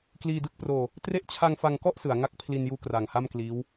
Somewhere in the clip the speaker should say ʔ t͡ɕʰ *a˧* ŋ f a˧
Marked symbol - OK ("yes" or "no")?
yes